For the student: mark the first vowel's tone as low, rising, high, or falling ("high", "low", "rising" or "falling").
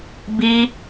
high